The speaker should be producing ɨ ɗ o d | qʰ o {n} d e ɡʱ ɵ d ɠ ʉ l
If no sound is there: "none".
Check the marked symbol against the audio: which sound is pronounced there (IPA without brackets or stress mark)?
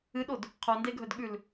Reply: n